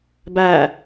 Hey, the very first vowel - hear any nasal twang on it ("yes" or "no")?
no